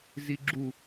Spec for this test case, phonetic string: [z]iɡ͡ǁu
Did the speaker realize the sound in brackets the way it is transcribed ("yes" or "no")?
yes